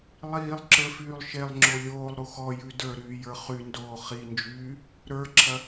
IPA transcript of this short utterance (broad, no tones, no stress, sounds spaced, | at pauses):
lˠ iː lˠ ǁ ə˞ f yː lˠ ʃ e lˠ ŋ͡ǁ o lʲ oː lˠ ɾ u x ɔ j ʉ d ə˞ ɾ yː j ə˞ χ y n d oː χ i n d͡ʒ yː | ɾ ə˞ ǁʰ ɐ